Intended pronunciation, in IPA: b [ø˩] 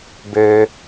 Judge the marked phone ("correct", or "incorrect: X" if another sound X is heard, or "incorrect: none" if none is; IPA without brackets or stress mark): correct